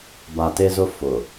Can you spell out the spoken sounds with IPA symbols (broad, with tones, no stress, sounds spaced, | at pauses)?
b a˨ t e˦ z ʊ˦ f ʊ˨